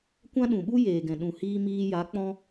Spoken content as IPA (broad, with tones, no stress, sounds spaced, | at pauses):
kʷ ã˦ ɗ ũ˨ ɓ u˦ j eː˨ ɡ ɛ̃˨ ɗ ũ˨ h iː˧ m iː˧ j a˨˦ k͡p ɔ̃˧